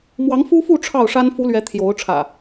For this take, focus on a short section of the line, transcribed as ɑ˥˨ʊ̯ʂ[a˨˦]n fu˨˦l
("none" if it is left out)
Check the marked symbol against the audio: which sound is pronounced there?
a˦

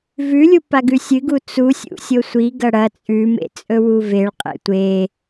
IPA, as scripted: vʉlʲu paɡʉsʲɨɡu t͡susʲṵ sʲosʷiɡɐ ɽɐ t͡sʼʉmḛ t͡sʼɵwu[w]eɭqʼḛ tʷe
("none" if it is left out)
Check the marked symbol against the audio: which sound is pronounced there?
v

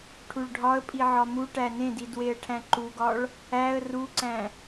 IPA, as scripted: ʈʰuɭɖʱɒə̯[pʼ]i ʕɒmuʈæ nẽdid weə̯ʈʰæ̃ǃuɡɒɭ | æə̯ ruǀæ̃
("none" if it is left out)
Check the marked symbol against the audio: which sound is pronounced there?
pʼ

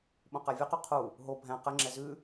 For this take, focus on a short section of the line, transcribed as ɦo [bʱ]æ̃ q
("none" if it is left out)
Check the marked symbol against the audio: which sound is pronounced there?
bʱ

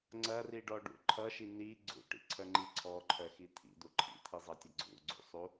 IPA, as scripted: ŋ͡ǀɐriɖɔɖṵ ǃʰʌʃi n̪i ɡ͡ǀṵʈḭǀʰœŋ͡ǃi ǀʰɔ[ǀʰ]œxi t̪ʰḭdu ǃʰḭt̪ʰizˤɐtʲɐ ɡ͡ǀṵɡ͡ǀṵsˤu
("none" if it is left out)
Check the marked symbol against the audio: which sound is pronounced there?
ǃʰ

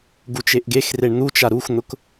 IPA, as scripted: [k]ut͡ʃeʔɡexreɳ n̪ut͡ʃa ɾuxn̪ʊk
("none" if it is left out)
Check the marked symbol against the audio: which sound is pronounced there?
ɡ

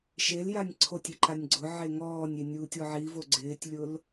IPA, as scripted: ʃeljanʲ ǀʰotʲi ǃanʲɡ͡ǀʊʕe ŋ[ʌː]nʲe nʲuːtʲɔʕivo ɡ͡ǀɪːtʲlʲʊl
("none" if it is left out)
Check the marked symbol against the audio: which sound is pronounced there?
ɔː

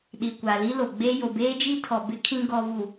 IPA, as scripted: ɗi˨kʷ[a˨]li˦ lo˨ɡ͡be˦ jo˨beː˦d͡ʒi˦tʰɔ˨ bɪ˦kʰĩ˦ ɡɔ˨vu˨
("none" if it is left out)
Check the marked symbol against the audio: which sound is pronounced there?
a˨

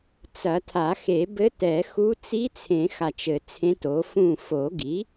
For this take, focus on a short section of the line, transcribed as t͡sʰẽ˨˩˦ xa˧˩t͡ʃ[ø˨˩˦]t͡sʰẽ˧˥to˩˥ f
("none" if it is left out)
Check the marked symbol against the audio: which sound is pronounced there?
ɘ˨˩˦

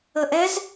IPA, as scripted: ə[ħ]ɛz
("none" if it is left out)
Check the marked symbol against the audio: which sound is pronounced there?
ʔ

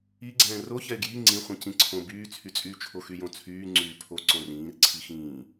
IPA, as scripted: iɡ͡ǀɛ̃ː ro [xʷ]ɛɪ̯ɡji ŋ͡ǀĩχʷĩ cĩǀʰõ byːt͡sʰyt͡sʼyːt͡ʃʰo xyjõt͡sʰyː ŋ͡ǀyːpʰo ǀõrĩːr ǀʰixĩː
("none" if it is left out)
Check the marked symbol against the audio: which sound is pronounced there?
ç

